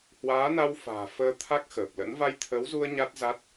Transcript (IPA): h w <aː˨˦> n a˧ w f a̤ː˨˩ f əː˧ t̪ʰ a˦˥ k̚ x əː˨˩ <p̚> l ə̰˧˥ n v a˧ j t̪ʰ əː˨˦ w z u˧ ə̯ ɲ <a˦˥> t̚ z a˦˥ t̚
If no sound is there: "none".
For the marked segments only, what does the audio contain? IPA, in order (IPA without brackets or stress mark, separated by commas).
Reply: aː˨˦, p̚, a˦˥